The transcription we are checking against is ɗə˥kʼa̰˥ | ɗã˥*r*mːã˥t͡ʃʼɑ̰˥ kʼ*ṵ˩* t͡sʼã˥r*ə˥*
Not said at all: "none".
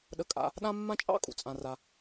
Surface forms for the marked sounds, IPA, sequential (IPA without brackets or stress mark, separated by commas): none, ṵ˩, a˥